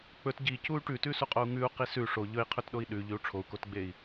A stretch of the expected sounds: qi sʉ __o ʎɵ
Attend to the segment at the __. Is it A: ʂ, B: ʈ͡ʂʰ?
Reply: A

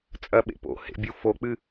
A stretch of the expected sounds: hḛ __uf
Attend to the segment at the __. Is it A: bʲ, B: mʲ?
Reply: A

